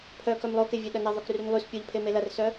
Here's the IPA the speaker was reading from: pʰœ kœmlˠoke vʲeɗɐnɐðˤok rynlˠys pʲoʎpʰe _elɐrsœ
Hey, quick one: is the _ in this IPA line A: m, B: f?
A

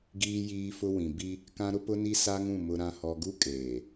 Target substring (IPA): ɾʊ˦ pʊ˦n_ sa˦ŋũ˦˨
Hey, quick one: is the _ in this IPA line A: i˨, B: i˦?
B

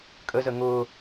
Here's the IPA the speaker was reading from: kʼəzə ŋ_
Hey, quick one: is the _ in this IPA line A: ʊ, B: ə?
A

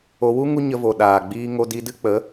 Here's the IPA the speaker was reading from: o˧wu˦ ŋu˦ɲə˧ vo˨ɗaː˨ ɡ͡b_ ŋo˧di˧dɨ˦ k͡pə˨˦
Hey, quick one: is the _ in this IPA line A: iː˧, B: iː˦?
A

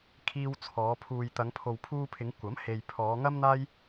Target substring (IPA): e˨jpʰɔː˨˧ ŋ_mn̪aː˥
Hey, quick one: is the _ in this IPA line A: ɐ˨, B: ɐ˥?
B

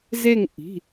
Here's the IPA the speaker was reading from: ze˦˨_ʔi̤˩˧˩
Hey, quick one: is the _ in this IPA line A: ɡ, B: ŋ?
B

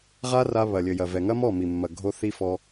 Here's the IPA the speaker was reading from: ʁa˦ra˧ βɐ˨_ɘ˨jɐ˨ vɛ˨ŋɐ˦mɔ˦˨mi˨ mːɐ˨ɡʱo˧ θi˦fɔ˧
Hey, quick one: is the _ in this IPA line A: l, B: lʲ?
B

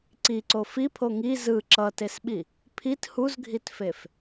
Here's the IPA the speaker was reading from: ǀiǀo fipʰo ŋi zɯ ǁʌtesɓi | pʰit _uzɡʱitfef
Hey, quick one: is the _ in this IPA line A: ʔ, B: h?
B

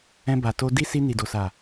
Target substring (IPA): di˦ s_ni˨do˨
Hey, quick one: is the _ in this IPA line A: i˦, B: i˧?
B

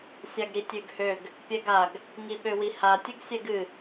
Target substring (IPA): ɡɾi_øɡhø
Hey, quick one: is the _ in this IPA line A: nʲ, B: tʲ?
B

